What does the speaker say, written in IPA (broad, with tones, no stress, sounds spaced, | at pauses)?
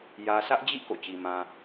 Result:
j ä˨ sʰ ä˦ ʔ d͡ʑ ḭ˦˨ k o̰˦˨ t͡ɕ i˨ m ã˨